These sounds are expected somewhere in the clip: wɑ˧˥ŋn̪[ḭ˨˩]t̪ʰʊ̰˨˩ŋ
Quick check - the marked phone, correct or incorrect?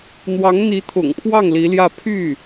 incorrect